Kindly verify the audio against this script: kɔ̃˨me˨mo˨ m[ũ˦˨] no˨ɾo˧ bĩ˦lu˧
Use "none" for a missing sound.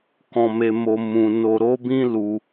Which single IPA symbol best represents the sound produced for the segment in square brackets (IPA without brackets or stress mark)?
ũ˨